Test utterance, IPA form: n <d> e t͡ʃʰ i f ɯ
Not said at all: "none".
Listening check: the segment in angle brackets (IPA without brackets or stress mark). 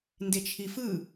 d